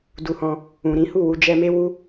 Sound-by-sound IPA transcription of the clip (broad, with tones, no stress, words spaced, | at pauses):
du˧hɔ̃˧ | ũ˨ɾĩ˨˦hu˦˨wu˧ d͡ʒɛ˧me˦wu˦